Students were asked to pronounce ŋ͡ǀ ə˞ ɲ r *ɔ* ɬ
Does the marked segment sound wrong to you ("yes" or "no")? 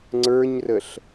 yes